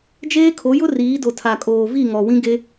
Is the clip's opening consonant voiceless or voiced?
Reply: voiced